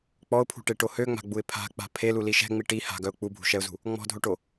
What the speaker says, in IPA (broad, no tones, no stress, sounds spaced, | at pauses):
k͡p ɔ ʊ̯ pʰ ṳ ʈ e ʈ o h ø ŋ͡m a̤ ɡ͡b u ɪ̯ pʰ a̤ k͡p a̤ pʰ e l u l i ʃ ɛ̤ ŋ͡m i ʈ i h a̤ ɡ œ ʊ̯ k͡p u bʱ ṳ ʃ ɛ ʊ̯ z ṳ | ŋ͡m ɔ̤ dʱ o ʈ o